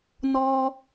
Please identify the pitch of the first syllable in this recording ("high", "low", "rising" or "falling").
high